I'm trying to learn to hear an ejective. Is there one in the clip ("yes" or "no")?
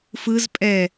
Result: yes